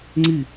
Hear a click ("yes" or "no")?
yes